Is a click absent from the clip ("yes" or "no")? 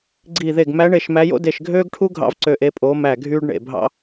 no